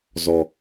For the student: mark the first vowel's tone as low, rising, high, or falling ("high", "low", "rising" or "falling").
low